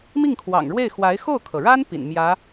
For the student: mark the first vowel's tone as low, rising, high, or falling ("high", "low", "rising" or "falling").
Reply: falling